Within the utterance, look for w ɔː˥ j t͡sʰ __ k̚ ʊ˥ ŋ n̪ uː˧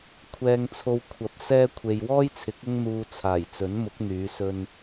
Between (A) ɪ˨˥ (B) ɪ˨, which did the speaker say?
A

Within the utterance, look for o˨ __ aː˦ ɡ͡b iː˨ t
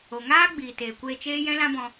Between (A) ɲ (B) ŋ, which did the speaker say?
B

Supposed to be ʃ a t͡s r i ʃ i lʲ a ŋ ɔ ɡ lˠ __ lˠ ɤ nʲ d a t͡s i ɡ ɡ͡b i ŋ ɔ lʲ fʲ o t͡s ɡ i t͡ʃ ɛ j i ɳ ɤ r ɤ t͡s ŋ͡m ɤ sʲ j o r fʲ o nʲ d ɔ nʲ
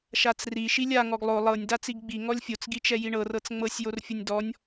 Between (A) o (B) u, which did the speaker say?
A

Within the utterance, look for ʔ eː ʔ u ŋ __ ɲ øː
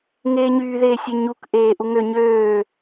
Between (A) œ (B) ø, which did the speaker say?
B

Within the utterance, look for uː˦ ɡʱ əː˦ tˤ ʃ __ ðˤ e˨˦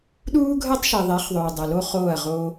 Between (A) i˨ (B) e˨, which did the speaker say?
A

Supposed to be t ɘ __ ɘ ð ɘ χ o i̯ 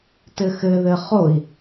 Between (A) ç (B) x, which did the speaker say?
B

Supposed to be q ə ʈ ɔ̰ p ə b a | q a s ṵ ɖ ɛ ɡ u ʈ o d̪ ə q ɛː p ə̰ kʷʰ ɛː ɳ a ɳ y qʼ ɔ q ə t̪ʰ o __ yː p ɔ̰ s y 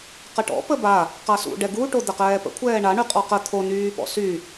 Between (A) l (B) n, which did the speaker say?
B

